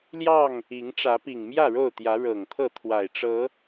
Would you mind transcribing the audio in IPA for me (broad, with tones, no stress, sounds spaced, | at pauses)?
l j ɑ˥˨ ŋ | i˨˦ ŋ ʈ͡ʂ ä˨˦ p i˨˩ ŋ m j ä˥˨ ɻ o˥˨ ʊ̯ t̪ j ä˨˦ ɻ ɤ˨˩ ŋ t̪ʰ ɤ˥˨ t̪ʰ w a˨˩ ɪ̯ ʈ͡ʂ ɤ˨˦